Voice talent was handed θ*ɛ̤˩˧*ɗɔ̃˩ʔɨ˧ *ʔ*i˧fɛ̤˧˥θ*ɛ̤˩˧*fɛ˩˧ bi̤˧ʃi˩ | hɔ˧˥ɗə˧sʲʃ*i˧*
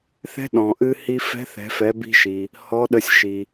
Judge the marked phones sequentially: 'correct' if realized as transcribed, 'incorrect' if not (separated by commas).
incorrect, incorrect, correct, incorrect